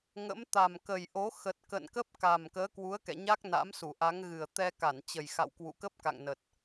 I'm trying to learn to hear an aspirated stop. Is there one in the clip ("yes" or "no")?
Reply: no